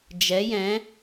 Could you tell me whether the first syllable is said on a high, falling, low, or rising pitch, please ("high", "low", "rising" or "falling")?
rising